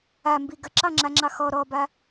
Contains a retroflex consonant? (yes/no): no